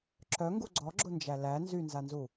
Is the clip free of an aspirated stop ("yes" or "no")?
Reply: yes